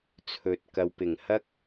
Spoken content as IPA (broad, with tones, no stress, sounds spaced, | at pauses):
t͡sʰ ɵ˨ t̚ k ɐ˨ w p ɪ˨˩ ŋ h ɐ˥ k̚